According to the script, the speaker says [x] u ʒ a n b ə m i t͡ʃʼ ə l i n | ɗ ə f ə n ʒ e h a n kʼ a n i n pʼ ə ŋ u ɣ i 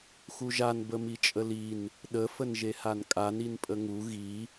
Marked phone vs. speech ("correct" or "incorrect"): correct